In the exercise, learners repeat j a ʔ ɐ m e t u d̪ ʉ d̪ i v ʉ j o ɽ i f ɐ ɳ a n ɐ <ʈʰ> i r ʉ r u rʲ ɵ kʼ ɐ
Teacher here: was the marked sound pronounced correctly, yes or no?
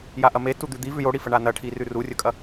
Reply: yes